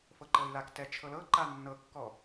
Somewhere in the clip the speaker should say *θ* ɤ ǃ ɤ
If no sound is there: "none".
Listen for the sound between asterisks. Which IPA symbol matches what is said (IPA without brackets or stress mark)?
f